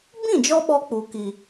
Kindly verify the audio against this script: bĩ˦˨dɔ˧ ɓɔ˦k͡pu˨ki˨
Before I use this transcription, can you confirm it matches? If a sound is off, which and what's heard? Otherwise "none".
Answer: d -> d͡ʒ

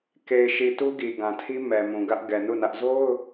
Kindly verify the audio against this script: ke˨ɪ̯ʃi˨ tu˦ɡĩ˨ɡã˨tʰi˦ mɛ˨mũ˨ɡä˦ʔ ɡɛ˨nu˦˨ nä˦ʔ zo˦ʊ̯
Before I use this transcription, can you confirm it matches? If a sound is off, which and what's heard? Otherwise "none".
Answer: ĩ˨ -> i˨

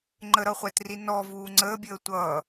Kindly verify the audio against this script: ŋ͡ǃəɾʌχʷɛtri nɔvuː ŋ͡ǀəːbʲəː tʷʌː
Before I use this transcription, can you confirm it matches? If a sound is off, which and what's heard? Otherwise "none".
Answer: none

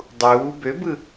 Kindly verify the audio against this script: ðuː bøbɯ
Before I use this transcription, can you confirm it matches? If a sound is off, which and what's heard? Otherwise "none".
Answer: ð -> dˤ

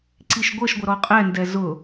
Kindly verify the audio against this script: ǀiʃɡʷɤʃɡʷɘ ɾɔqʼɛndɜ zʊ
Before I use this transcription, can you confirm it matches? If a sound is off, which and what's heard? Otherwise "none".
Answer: ɜ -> ɛ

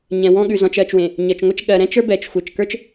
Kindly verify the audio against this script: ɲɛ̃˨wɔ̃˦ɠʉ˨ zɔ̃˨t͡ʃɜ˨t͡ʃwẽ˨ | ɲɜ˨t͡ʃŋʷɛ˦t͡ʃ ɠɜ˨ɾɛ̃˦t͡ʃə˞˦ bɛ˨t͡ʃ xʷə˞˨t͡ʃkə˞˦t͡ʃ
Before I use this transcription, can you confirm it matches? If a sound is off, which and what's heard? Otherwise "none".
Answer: none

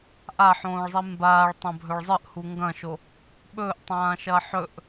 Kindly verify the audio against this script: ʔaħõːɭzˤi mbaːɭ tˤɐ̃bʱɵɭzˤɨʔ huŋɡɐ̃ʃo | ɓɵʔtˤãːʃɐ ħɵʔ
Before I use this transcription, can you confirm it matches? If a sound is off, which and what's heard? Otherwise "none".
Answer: none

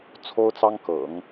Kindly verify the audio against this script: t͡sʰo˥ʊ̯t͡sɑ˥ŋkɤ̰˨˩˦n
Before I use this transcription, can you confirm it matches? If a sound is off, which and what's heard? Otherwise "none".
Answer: n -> ŋ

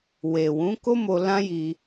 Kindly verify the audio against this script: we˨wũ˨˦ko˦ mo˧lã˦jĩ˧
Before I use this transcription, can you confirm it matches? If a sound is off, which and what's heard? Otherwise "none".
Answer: ĩ˧ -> i˧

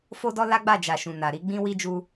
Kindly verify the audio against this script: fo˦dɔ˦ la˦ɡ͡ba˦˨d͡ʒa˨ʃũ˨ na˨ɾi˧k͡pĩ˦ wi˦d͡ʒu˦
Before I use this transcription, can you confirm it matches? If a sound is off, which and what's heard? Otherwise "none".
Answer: k͡p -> ɡ͡b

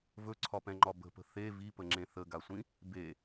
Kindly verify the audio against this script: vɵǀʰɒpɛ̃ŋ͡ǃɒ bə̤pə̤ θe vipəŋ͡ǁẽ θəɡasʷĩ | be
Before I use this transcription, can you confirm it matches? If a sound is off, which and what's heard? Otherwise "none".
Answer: none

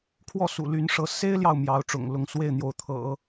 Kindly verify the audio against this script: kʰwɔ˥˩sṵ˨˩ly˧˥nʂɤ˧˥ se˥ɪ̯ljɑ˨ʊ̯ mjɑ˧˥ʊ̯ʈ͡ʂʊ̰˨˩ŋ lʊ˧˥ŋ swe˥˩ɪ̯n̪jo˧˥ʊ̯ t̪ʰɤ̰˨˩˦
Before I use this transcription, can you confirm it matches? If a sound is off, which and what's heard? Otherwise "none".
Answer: none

